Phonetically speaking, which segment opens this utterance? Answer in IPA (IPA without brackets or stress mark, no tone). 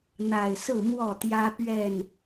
n̪